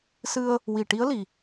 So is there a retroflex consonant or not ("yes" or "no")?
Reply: yes